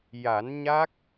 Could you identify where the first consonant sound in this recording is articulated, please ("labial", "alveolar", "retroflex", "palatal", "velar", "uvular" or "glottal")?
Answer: palatal